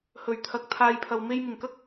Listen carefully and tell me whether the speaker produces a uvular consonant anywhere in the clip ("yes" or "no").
no